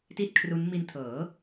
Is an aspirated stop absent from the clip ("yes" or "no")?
no